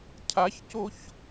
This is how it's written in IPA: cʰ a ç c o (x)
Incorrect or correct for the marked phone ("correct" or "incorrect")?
incorrect